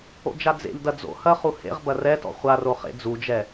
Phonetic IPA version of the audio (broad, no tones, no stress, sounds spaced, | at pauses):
o̰ d͡ʒ a d͡z ḛ ʎ d ɐ d͡z o̰ h ɐ χ u h ḛ ʁ b ɐ r ɛ t ɔ̰ χʷ a r o χ ḛ d͡z u d͡ʒ ɛ